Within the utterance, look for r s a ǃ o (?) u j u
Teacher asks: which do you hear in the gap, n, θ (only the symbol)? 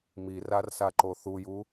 θ